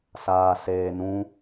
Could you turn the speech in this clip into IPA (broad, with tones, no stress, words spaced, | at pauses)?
saː˨ seː˨ nũ˧